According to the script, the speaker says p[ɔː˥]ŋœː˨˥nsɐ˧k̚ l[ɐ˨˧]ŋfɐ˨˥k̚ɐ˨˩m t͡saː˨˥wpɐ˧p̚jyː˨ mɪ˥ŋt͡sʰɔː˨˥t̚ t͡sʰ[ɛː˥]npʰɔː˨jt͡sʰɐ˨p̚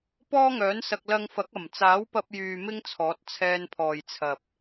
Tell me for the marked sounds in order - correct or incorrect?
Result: correct, incorrect, incorrect

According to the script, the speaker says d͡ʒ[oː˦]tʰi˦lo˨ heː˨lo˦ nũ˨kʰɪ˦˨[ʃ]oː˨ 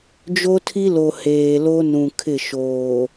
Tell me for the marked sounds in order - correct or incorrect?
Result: incorrect, correct

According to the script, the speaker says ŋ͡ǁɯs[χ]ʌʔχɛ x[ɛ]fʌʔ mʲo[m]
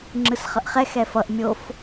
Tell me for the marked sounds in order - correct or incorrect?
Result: correct, correct, incorrect

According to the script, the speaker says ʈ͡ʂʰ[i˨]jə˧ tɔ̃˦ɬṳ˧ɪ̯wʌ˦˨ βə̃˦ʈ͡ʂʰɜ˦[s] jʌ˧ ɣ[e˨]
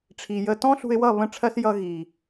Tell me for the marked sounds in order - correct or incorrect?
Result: correct, correct, incorrect

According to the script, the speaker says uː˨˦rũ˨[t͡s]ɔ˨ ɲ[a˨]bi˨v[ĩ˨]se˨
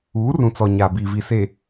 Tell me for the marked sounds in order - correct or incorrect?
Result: correct, correct, incorrect

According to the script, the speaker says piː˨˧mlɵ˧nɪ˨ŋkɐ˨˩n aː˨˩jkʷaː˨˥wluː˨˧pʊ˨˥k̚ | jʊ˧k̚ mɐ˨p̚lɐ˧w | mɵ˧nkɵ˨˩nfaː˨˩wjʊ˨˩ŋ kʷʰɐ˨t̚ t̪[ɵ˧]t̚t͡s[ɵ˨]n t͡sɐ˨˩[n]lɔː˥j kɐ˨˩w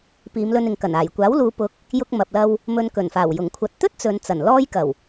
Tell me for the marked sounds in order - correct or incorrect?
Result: incorrect, correct, correct

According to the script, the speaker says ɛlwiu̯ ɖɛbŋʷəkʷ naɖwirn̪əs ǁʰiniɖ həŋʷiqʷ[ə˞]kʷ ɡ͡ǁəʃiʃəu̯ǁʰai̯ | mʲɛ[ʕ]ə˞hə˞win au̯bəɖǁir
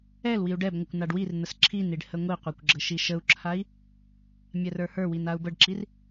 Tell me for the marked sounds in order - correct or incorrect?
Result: correct, incorrect

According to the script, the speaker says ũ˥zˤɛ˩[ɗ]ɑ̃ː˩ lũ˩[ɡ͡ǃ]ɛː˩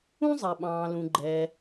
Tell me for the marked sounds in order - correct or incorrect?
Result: incorrect, correct

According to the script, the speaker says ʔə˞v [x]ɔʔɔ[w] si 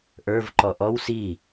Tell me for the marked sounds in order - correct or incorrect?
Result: incorrect, correct

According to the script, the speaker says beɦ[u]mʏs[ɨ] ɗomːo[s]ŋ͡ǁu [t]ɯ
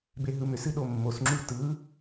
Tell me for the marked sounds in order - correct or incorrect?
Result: incorrect, correct, correct, correct

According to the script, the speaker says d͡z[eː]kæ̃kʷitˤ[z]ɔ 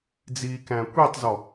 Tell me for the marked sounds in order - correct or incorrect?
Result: incorrect, correct

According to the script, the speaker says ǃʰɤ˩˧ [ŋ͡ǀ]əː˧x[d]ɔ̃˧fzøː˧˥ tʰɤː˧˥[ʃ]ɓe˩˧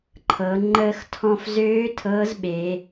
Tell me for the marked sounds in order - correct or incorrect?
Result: incorrect, incorrect, incorrect

